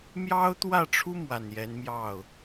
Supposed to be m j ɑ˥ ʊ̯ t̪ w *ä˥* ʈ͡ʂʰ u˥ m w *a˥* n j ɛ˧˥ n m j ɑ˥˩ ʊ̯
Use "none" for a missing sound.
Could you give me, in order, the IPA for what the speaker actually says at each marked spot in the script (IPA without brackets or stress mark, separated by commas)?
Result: ä˥˩, a˨˩